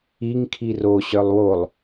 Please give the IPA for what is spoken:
i ŋ kʰ i r o ɕ œ lˠ w o lˠ

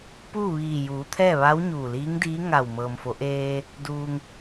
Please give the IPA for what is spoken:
p uː˥˨ ʋ iː˧˩ j uː˩˧ t̪ʰ ɛː˥˨ ʋ a˧˥ w ɲ uː˧˩ l iː˧˥ ŋ d iː˧˥ ŋ a˧˩ w m ɤː˩ m f o˩˧ ʔ eː˧ | d uː˩ ŋ

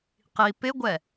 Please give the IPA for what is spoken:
q i p ɪ ɡʷ ɛ

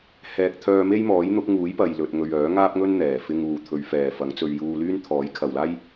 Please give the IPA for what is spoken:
h ɛː˨ k̚ t̪ʰ œː˧ m e˥ j m ɔː˨˥ j n̪ ʊ˨˥ k̚ ŋ uː˨˥ j p ɐ˨ j l ɵ˨ t̚ ŋ ɵ˨ ɥ œː˨˥ ŋ aː˥ p̚ ŋ ɵ˥ n n̪ ɛː˨˩ f ɪ˧ ŋ uː˨ t̪ʰ ɵ˨˧ ɥ f ɛː˨ f ɐ˨˥ ŋ t͡s ɵ˧ ɥ j uː˧ l yː˥ n t̪ʰ ɔː˨˥ j kʰ ɐ˨ w l aː˥ j

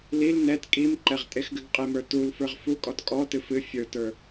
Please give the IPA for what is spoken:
l i l n ɛ t kʼ i m ǃ ɛ ʁ tʼ e x ɡ ɨ ɡ qʼ e m ə˞ t u l f ə˞ ʁ f u kʼ ɔ t kʼ ɔ t ɨ f ɨ fʲ ə˞ t ə˞

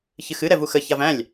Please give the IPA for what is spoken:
ç ɨ x ɨ ɾ ɛ v u x ə ç a v æ̃ lʲ

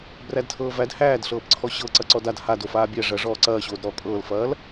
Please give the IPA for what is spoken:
b r æ d tʰ ɤː v æ d h æː d ɬ ɤː p ǀʰ ɔ ɕ ɤ ǀ ɐ ǀ ɔ d a d h a d o f aː bʲ æ ʐ ɐ ʐ ɔː ǀ ɐː ɕ oː d ɾ ɔː kʼ ɤː l f ɐː l

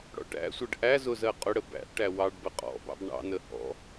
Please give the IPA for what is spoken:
ɽ ɔ̰ ʈ æ̰ sʷ ɜ ɖ ʔ æ z ʊ z ɜ qʼ ʊ ɽ ə b æ̰ ʔ ʈ æ w ɑ ɖ b ə qʼ ɔ̰ b ɑ̰ b ɳ ɑ̰ n ə h ɔ̰

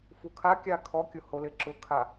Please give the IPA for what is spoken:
f u kʰ a kʲ a kʰ ɔ kʲ ʊ h o l ɪ ǁ ʊ kʰ a

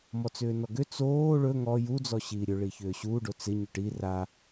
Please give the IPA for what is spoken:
m ɔ t͡s ʏː n ɔ ɡ ʏ t͡s oː ɭ ɵ ŋ ɔ j u d͡z ɔ ɕ iː ɾʲ ɵ ɭ i ç ʏː ɕ uː ɖ o t͡s ɪ ɲ ʏ ʈ i r a

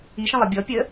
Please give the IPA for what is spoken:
i ʃ ə̃ lˠ ʌ bʲ ɔ pʲ ə

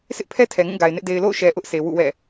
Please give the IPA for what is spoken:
sʰ ɪ˦ ʔ pʰ ɛ˦ tʰ ɛ˨ ŋ ũ˦˨ ɡ a˨ ɪ̯ n ɪ˦ ʔ d e˨ ɪ̯ l o̰˦˨ ʊ̯ ʃ ɛ˨ ʔ ʊ˦ ʔ sʰ e˨ w ṵ˦˨ w ɛ̰˦˨

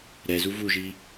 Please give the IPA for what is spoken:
ɾ ɛ z u v u ʒ i

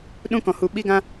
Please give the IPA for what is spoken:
ɗ ũ˦ k ɔ̃˧ h u˧ ɓ i˦ ɡ ã˦

